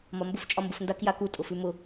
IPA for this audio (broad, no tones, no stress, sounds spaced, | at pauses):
m ɒ m b ʊ f t͡ʃʼ ɒ m b ʊ f n d a k j a k u tʼ ʊ f ʉ m ʊ